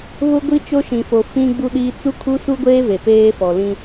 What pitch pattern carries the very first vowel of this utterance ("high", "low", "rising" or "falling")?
high